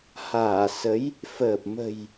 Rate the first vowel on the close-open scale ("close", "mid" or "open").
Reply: open